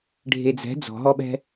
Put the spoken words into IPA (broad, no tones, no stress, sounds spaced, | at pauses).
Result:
ɖʱ e d͡z ɛ̤ d͡z ɔ̤ ɦ ɔ ɓ ɛ̤